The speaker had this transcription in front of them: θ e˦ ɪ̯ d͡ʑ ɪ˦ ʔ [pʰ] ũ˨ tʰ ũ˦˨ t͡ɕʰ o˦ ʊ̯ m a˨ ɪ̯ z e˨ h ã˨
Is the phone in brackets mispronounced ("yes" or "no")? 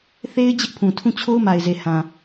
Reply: no